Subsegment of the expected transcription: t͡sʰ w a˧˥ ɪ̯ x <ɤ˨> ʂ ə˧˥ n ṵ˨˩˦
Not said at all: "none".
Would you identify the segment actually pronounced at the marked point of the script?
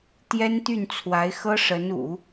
ɤ˥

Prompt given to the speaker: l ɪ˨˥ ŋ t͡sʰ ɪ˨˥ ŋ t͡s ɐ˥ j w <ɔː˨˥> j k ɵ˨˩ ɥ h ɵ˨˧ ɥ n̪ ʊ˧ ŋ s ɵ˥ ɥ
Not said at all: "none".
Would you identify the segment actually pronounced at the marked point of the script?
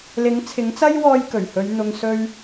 ɔː˥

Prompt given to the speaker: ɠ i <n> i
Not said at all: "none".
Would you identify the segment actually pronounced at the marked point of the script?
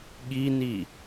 n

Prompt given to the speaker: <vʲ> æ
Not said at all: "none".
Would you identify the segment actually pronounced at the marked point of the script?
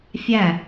fʲ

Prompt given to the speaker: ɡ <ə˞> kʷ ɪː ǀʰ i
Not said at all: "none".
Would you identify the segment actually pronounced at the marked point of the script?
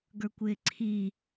ə˞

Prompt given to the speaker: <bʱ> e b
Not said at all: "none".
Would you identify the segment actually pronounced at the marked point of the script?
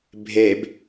bʱ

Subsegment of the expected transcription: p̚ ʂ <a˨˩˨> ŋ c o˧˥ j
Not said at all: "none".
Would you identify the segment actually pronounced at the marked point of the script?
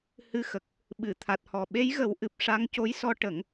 a˧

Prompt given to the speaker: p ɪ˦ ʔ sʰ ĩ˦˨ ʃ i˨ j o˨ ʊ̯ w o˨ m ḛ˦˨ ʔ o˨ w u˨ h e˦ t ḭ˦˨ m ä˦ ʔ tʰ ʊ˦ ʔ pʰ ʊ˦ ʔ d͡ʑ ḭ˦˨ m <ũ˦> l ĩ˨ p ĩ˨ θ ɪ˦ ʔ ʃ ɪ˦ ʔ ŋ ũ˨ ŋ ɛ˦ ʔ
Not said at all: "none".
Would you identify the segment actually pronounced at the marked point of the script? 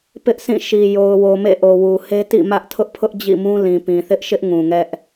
ũ˦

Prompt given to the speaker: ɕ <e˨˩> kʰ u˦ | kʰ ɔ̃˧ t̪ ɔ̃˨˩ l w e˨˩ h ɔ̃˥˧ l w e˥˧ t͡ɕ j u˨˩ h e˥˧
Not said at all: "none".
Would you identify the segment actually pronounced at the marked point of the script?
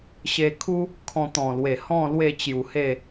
e˧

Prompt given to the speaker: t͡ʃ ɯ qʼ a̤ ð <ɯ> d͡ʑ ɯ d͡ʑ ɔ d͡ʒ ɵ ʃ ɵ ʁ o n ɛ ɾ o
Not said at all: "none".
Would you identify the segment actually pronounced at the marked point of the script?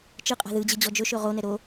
ɯ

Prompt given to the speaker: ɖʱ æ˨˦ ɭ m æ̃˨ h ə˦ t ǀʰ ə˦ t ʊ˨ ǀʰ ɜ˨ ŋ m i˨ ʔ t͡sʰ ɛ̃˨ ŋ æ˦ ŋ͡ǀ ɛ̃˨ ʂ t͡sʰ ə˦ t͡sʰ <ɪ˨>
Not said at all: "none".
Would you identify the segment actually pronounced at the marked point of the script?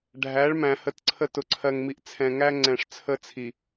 i˨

